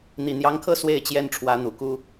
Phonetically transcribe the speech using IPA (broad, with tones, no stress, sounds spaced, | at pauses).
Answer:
n̪ i˨˩ n̪ j ɑ˧˥ ŋ kʰ ɤ˥˧ s w e˥˩ ɪ̯ t͡ɕ j ɛ˥ n ʈ͡ʂʰ w ä˧˥ n̪ u˨˩ k u˥